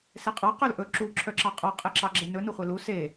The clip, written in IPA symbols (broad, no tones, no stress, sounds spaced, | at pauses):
s ɛ qʼ ɑ q œ l ʔ ɵ ǁ u ǁʰ œ ǁ ɑ qʼ ɑ qʼ ɛ ǁ ɑ ɡ͡ǁ e n ɵ n u χʷ e l u s e